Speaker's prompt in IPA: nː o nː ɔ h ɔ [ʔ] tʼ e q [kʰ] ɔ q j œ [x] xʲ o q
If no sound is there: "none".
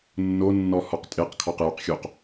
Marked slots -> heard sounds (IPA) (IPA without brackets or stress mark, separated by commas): q, kʰ, q